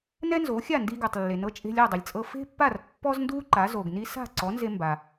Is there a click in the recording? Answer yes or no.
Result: yes